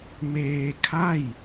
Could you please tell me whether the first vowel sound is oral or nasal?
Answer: oral